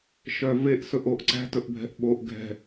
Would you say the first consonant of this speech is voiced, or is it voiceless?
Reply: voiceless